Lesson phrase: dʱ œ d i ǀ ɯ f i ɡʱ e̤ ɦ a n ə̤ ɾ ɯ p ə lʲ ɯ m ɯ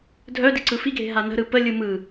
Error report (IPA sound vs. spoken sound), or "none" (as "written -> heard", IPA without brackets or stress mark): none